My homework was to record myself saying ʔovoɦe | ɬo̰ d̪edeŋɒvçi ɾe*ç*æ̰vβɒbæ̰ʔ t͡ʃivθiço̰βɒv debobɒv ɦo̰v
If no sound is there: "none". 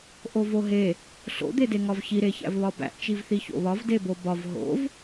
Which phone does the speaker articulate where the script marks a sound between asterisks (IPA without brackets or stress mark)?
ç